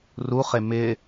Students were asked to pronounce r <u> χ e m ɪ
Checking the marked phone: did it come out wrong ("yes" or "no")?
no